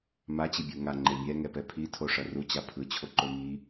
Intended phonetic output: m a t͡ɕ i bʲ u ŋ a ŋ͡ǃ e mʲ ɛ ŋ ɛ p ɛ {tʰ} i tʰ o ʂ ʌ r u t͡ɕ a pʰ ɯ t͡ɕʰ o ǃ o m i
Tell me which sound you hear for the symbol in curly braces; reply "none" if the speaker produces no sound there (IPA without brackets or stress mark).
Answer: pʰ